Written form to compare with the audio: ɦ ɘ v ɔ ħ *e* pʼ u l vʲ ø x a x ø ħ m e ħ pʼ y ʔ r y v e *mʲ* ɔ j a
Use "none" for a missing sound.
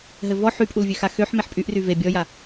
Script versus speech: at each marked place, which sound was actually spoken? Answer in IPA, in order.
y, bʲ

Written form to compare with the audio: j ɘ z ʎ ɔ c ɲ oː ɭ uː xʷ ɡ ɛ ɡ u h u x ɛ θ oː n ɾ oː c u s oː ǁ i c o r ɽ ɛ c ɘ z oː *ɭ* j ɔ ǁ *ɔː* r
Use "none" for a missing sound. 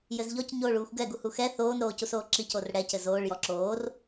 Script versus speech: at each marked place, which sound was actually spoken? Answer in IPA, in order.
ɭ, oː

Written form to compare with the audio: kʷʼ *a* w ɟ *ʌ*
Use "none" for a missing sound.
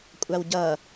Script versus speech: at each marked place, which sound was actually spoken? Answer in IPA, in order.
a, ʌ

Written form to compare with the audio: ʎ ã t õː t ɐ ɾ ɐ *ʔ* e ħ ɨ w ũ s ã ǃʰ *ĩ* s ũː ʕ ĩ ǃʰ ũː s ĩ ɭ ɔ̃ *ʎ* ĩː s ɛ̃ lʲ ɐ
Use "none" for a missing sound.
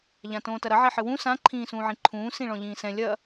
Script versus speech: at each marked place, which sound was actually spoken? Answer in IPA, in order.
ʕ, ĩː, ʎ

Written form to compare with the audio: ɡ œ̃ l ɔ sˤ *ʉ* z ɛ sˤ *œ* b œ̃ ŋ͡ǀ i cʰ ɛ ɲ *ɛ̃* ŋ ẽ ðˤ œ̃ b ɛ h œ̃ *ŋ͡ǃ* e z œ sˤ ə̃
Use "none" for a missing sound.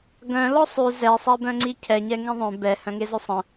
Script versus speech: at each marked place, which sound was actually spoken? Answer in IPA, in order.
ʉ, ɛ, ɛ, ŋ

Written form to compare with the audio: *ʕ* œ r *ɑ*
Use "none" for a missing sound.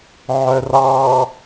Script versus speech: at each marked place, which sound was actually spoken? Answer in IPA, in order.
ʕ, ɑ

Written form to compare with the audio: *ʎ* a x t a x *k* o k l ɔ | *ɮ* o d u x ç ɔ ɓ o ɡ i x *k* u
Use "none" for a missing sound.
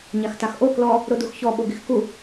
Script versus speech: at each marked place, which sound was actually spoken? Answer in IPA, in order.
ɲ, ʔ, ɾ, k

